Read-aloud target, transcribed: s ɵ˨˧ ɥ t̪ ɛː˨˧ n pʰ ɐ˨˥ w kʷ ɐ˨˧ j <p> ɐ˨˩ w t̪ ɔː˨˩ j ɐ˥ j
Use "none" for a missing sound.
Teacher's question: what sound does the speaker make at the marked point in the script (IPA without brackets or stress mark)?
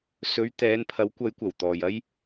kʷ